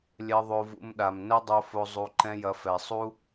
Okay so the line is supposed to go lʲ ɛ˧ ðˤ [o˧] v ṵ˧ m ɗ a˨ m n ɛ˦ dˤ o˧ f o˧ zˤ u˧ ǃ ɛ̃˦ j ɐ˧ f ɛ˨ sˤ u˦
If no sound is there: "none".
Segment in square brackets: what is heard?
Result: o˧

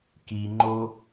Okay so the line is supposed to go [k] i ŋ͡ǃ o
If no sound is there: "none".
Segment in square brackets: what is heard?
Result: k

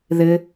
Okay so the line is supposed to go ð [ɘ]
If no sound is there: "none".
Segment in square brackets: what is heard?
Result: ɘ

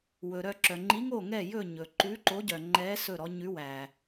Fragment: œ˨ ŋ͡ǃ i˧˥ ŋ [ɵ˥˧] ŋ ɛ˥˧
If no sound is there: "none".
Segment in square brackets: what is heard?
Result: o˥˧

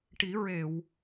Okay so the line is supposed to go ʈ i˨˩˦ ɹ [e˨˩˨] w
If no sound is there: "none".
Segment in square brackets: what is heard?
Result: e˨˩˨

